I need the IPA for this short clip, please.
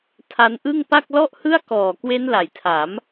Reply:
tʰ a˦˥ n ʔ ɯ˥˩ ŋ p a˥˩ k̚ l ɔ˥˩ ʔ h ɯ˥˩ a̯ k ɔː˨˩ k w e˦˥ n l a˩˦ j tʰ a˩˦ m

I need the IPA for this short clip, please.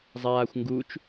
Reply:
zˤ aː xʷ ŋ ɡ u t͡ʃ

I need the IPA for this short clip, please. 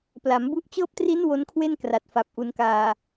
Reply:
p l a˩˦ m b u˦˥ ʔ t͡ɕ ɤː˦˥ p̚ t r i˦˥ n w o˦˥ n kʰ w e˥˩ n k r a˨˩ t̚ f a˨˩ p̚ ʔ u˩˦ n k aː˨˩

